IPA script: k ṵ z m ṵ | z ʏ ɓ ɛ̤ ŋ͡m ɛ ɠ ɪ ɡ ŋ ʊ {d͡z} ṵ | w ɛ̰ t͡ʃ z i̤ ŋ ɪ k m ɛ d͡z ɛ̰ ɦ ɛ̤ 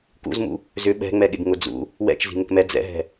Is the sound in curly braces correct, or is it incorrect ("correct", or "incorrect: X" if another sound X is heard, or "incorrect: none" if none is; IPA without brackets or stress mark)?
correct